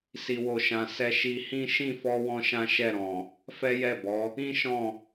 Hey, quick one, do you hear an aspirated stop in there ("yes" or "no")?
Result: no